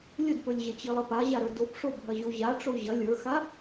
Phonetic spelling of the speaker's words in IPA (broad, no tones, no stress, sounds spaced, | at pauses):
lʲ ɵ d p ɵ lʲ ʑ ɐ t͡ɕ i lˠ ɐ p a ʑ a ɾ ə˞ d o p ʂ o bʱ ɐ ʑ o ʑ a ʈ͡ʂ o ʑ ɐ lʲ ə˞ x a